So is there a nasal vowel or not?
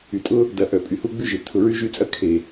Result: no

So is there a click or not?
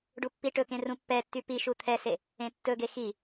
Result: no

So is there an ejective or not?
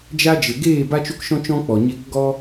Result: no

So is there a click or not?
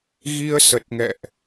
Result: no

